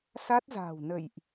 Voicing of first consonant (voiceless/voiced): voiceless